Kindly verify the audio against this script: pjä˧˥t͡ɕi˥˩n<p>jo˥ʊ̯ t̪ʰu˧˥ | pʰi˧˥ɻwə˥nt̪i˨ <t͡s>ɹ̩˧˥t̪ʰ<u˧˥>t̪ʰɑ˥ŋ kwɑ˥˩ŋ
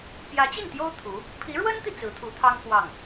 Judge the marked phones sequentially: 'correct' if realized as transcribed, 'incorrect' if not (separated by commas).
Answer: incorrect, correct, correct